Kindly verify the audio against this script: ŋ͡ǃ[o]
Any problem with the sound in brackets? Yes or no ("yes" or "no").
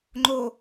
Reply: no